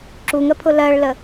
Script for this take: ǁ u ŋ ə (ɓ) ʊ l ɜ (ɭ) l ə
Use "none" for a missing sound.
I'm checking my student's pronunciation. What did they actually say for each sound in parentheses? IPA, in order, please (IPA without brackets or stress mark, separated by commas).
pʰ, ɭ